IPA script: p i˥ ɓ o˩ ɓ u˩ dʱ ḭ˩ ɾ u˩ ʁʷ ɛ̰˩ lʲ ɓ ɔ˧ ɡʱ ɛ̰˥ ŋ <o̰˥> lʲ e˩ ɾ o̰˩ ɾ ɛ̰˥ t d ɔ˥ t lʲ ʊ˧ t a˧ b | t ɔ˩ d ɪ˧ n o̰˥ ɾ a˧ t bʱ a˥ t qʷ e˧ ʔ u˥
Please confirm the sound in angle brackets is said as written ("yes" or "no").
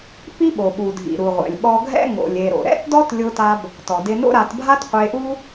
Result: no